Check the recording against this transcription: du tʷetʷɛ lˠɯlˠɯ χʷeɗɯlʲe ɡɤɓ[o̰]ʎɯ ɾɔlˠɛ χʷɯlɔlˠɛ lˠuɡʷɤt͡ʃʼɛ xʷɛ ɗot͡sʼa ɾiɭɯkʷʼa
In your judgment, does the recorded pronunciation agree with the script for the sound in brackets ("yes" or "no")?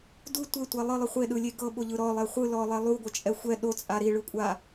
no